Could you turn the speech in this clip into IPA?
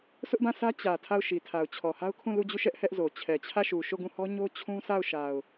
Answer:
sʰ ʊ˦ ʔ b ã˦˨ sʰ ä˦ t͡ɕ ä˨ tʰ a˦˨ ʊ̯ ʃ i˨ tʰ a˨ ʊ̯ t͡ɕʰ ɔ˨ h a˦ ʊ̯ kʰ ũ˦˨ l u˦˨ d͡ʑ u˦˨ ʃ ɛ˦ ʔ h ɛ˦ ʔ z o˨ t͡ɕʰ ɛ˨ t͡ɕʰ ä˦˨ ʃ u˨ ʃ o˦˨ ɡ ũ˦˨ h ɔ˦ ɲ o˦ t͡ɕʰ ũ˦ s a˦˨ ʊ̯ ʃ a˨ ʊ̯

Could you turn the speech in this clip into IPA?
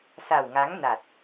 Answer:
s a˨˩ w ŋ a˨˦ ŋ n a˨˩ t̚

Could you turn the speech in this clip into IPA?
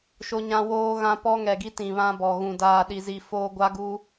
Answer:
ʃ o˦ ɲ ã˦ w oː˦ ɣ ã˦ p ɔ˦ ŋ ɛ˨ ɡ i˦ t ĩ˨ β ã˦ b ɔ˨ ɣ ũ˨ d aː˨ ɗ i˨ z i˨ f oː˦ ɡʷ a˦ ɡ u˦

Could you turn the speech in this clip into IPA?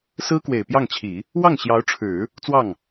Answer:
s ɹ̩˥ k w e˨˩ ɪ̯ p j ɑ˥˩ ŋ t͡ɕʰ i˨˩˦ | w ɑ˥˩ ŋ ɕ j ɑ˧˥ ʊ̯ ʈ͡ʂʰ ɻ̩˨˩˦ | t͡s w ɑ˥˩ ŋ

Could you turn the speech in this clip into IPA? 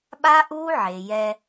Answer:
ɓ a˦ ʔ uː˦ ʕ e˨ j ɛ˧

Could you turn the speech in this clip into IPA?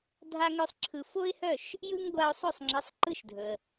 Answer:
dʱ a˥ ŋ œ˥ sˤ ǁʰ ɯ˧ f o˥ ɪ̯ h œ˥˩ ʃ | j ɯ˥ ŋ ɡʷ a˧ ʊ̯ sˤ ɵ˥˩ sˤ ŋ͡ǁ i˩˥ sˤ ǃ ɯ˥ ʃ dʱ ɵ˩ ə̯

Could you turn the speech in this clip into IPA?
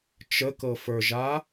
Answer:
t͡ʃ ə k ɤ f ə˞ ʒ a

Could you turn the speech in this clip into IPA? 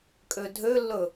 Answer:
kʼ ø dʱ ø lː ɵ

